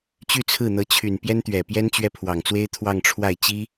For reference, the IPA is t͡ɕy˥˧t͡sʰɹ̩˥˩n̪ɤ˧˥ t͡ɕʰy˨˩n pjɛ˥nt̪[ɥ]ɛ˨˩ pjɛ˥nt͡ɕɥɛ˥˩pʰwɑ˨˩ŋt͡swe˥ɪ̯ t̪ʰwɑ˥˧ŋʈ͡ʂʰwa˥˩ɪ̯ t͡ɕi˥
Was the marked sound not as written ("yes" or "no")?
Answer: no